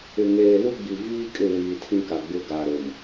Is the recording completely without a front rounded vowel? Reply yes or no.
yes